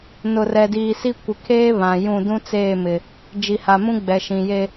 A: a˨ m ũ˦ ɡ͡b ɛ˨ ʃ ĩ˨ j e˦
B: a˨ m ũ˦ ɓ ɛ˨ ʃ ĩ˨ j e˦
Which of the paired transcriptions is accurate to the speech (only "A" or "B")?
A